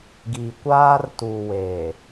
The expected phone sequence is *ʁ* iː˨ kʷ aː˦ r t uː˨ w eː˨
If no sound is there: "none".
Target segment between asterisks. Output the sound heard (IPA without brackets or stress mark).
ɡ